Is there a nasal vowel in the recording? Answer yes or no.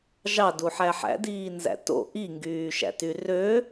no